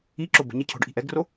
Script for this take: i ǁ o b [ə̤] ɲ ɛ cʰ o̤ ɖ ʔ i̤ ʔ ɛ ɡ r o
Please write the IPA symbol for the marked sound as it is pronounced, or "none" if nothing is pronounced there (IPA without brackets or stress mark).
ə̤